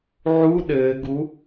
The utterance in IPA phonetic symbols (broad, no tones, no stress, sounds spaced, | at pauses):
ʕ u ɗ ɘː ɡ u